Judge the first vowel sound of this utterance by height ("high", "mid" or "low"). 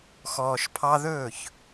mid